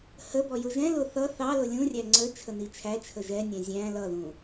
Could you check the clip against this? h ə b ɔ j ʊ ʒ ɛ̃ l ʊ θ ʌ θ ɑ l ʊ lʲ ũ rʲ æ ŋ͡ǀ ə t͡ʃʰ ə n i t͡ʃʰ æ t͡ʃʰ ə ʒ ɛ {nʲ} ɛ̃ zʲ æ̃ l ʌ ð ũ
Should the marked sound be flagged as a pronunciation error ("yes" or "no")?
no